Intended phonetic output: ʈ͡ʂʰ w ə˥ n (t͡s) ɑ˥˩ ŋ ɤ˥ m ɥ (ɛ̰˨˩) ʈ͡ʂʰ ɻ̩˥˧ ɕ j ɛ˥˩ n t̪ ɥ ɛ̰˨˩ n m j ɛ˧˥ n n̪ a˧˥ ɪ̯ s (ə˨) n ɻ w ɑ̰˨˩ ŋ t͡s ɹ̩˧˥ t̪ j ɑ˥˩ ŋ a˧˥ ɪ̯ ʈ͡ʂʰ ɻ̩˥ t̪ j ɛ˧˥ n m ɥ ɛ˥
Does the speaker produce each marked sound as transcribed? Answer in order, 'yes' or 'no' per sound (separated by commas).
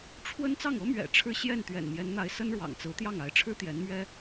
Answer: yes, yes, no